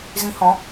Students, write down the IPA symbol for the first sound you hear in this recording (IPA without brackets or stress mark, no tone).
z